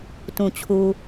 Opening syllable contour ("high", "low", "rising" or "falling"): low